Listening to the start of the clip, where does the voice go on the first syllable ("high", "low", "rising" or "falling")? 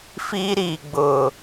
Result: high